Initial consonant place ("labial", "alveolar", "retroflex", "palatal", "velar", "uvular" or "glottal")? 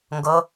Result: velar